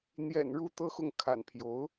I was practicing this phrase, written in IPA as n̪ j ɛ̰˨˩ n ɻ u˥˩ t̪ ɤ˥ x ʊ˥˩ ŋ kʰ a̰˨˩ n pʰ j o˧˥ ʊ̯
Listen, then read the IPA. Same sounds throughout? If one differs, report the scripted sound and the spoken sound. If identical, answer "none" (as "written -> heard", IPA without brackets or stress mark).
none